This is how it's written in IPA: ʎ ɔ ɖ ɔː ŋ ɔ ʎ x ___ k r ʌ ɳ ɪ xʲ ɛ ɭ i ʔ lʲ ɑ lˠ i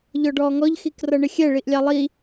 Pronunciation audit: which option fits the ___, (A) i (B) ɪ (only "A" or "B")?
A